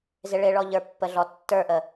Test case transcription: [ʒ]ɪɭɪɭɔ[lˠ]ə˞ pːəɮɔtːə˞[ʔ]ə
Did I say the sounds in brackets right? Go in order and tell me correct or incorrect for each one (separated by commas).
incorrect, incorrect, correct